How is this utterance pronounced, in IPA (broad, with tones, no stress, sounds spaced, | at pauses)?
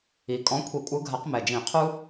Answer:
i˨˩ kʼ ɔ̃˨˦ kʷʰ i˨˩˦ kʷʼ ɯ˨˦ ɡʱ a˨˩˦ q m ɛ˨˩ d͡ʒ ĩ˨˩˦ qʰ u˦